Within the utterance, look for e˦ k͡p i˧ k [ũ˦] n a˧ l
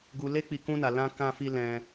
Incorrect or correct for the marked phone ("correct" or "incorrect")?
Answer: correct